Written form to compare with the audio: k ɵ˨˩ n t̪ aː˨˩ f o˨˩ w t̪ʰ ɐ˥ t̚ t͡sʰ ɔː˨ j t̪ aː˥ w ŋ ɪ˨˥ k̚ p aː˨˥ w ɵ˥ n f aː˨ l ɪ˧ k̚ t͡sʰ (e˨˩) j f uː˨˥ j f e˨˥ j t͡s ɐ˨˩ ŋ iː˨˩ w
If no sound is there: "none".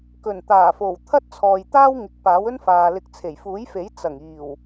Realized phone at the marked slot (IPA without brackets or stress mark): e˨˩